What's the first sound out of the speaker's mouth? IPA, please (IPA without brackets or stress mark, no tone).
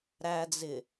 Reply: ɾ